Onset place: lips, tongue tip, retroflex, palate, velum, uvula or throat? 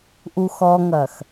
throat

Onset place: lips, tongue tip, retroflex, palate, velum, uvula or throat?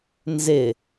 tongue tip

